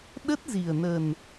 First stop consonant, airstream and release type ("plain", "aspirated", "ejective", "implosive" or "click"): implosive